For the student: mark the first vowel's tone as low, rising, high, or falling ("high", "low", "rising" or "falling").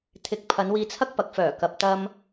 rising